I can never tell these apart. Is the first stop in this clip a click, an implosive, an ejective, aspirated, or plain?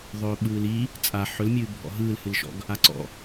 implosive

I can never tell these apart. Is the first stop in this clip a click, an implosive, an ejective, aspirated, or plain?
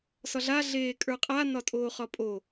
ejective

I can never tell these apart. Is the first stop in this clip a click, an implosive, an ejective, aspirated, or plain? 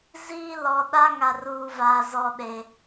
implosive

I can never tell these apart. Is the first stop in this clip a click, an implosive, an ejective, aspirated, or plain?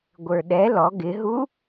plain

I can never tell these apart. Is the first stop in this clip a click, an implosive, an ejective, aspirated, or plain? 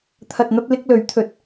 aspirated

